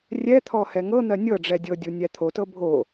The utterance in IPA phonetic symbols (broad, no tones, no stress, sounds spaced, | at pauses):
rʲ ɛ t̪ʰ ɔ h ɛ ŋ ɤ n̪ ɜ nʲ ɤ ɖ͡ʐ ɛ dʲ ɤ dʲ u nʲ æ t̪ʰ o t ɤ bʱ o